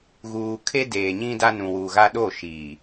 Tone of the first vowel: low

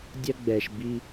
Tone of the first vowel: high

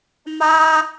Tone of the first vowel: high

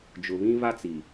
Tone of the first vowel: low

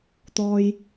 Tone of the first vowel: low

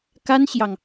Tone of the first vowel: high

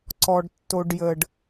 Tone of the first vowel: low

